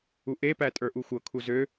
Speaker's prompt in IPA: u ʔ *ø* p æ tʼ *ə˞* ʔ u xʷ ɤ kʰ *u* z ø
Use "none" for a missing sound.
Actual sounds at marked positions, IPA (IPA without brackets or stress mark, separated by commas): e, ə˞, u